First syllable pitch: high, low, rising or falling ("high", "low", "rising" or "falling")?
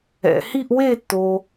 low